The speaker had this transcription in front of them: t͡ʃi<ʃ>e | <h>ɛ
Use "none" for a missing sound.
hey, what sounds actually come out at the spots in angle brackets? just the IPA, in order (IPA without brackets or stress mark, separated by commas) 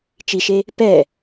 ʃ, p